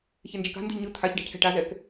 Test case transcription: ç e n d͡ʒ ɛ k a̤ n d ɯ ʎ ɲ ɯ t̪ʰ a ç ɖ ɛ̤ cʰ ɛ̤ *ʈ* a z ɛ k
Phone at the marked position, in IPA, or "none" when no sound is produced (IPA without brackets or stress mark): ʈ